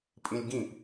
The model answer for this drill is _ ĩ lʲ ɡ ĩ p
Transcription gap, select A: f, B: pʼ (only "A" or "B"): B